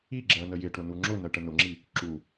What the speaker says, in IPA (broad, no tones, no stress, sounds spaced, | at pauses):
i ɡ͡ǁ ɜ n ə j ɪ ʈ ʊ n u ŋ͡ǁ ʊ n ɜ ʈ ə n ʊ ŋ͡ǁ i | ǁ u